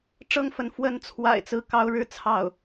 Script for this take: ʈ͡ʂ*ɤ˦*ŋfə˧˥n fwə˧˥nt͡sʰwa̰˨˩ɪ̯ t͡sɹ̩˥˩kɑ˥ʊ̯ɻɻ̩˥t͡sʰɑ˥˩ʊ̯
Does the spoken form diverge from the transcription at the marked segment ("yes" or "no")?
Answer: yes